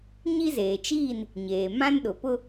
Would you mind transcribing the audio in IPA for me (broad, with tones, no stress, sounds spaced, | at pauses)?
ɲ i˦ z eː˨ t͡ʃ iː˦˨ n | ɲ eː˨ m ã˦ n ɗ ʊ˨ p ʊ˦